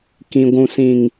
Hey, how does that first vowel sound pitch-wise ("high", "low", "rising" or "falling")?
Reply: low